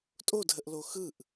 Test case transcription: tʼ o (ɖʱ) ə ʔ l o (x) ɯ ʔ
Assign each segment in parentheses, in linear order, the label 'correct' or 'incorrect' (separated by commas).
incorrect, correct